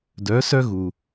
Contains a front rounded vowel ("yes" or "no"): yes